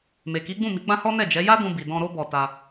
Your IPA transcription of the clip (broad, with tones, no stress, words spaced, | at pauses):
me˨ki˨˦ɡ͡bũ˦˨ mi˨˦ɡ͡bã˦hɔ˦ nɛ˦˨d͡ʒɛ˨˦ ja˦ dũ˧bi˨ dɔ̃˧ɾo˦bɔ˧ta˧